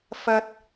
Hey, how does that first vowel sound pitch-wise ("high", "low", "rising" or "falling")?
high